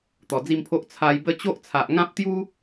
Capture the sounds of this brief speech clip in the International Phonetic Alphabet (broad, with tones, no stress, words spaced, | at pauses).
t̪ɔ˨˩d͡zi˥˧mpʰo˦ʔ t͡sʰa˧jbə˦ t͡ɕo˦ʔt͡sʰa˨ʔŋã˦p̚t̪ju˦